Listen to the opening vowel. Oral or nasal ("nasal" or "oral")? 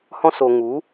nasal